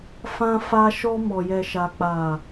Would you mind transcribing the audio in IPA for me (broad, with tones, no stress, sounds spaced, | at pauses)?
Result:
f ã˧ f a˧ ʃ ɔ˧ m ɔ˨ j ɛ˨ ʃ a˨ k͡p a˨